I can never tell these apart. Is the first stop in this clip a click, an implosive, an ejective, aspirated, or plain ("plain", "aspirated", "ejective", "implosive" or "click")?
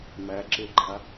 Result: click